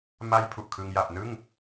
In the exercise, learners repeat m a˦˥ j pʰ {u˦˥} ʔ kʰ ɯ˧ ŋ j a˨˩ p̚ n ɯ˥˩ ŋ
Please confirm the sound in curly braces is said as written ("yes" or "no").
no